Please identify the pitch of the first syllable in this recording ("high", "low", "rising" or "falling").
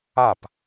falling